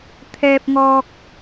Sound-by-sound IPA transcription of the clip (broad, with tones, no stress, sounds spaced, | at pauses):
t̪ʰ ɛː˧ p̚ ŋ ɔː˧ k̚